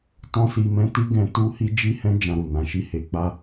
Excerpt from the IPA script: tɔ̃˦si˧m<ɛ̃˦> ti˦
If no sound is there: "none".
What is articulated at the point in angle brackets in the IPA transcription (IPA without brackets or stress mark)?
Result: ɛ̃˦